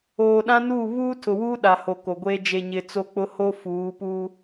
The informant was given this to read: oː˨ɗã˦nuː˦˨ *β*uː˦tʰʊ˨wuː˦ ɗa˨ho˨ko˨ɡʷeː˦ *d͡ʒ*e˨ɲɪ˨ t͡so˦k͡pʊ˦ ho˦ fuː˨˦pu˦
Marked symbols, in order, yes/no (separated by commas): yes, yes